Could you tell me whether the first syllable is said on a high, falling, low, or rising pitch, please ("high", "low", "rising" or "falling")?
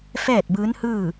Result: falling